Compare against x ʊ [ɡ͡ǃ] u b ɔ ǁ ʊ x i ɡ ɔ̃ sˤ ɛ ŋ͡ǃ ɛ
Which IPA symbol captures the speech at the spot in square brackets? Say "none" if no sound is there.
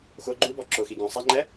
ɡ͡ǃ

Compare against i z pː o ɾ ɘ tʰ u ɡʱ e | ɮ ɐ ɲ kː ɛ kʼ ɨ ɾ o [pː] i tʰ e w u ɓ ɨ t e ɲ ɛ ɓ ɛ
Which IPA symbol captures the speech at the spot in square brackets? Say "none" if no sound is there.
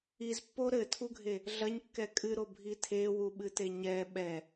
bʱ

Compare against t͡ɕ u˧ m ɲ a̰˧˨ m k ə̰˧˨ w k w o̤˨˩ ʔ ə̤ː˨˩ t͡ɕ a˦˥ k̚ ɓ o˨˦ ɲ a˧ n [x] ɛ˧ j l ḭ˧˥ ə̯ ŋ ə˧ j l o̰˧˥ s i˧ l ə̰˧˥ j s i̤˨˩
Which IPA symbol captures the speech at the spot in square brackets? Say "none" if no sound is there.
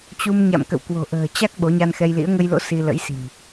x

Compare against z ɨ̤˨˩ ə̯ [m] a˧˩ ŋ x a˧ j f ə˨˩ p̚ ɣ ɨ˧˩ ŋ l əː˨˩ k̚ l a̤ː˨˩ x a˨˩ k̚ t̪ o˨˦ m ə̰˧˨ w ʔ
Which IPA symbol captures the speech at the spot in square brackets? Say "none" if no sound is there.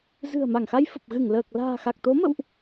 m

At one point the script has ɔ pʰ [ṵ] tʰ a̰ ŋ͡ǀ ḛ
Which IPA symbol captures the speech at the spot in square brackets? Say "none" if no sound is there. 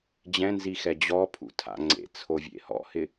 ṵ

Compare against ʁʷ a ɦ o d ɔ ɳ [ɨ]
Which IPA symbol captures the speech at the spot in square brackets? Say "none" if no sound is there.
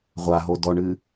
ɨ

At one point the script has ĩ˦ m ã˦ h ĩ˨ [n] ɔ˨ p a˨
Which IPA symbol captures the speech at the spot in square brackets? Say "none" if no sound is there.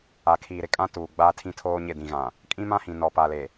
n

